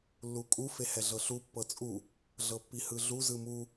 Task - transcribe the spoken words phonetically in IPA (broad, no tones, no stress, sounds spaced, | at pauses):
lː u kʼ u f e h ɛ ɮ ɤ ɬ u pː ɤ t͡sʼ u | ɮ ɤ pː i h ɯ ɮ u z ɯ m u